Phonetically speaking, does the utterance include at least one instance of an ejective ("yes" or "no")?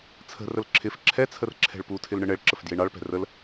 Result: no